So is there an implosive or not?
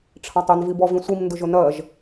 no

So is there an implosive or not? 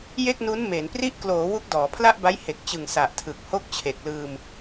no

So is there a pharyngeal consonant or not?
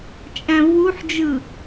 yes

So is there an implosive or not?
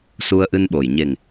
yes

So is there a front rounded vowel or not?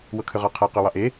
yes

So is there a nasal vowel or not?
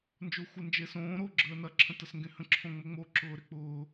yes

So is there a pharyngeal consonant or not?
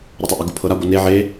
yes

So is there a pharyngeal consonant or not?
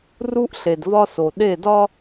no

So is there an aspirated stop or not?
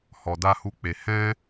no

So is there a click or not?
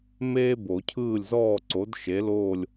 yes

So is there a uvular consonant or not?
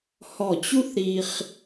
yes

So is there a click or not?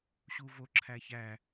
yes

